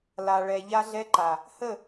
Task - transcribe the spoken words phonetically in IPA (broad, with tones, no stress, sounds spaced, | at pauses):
l a˨ ɭ ɛ˨ ʎ a˧ ɮ ɛ˧ ǃ a˨ | h ə˦˨